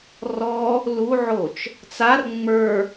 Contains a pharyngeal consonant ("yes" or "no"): yes